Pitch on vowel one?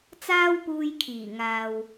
high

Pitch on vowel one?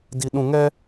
high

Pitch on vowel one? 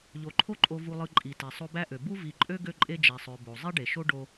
low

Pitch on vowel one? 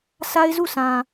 high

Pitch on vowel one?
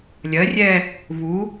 rising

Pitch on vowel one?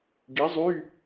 rising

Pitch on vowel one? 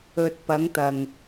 low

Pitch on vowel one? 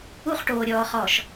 high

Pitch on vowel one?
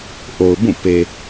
low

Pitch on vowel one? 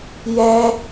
high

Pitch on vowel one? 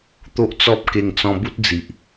high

